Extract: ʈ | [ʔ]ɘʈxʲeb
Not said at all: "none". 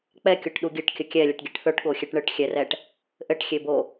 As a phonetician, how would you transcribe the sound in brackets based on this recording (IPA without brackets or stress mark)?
ʔ